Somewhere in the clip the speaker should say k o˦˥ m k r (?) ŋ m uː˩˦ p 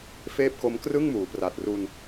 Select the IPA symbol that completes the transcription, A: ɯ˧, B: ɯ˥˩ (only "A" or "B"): B